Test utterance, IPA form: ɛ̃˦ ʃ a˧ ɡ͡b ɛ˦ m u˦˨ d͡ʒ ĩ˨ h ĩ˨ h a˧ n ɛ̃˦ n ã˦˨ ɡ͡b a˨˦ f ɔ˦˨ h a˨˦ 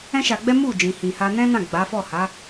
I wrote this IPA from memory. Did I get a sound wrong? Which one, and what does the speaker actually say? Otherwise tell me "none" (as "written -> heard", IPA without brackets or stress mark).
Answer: none